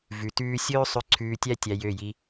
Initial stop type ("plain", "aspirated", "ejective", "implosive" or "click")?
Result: plain